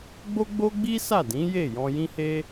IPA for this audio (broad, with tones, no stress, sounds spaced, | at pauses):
ɡ͡b o˦ ɡ͡b o˦ ɡ͡b i˦ s a˦˨ d ĩ˨˦ j e˦˨ j ɔ̃˧ j ĩ˦ h e˦